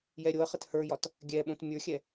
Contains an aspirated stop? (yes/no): no